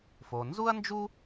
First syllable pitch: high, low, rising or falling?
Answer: low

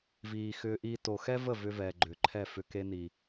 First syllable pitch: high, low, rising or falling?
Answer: low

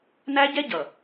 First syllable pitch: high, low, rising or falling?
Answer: high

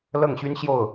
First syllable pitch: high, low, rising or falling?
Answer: falling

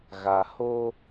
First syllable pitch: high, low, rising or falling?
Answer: low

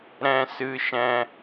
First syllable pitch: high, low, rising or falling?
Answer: high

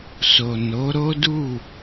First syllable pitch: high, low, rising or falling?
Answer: low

